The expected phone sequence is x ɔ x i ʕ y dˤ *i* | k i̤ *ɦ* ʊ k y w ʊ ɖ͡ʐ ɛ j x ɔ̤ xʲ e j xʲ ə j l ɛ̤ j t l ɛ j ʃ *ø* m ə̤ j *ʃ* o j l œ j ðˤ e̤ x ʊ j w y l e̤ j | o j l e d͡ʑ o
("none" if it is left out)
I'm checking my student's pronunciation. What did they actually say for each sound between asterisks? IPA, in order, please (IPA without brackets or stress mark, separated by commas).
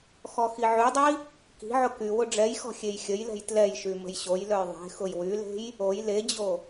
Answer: i, ʕ, y, ɕ